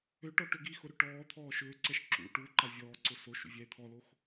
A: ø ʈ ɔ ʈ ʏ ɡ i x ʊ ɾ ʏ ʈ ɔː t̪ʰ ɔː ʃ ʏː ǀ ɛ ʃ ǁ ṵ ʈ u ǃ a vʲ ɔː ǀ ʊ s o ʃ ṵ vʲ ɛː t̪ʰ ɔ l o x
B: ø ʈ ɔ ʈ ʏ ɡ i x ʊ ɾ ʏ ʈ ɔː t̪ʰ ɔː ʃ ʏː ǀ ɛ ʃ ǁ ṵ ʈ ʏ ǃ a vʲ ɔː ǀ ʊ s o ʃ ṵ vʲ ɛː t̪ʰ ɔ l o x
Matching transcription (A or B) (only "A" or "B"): A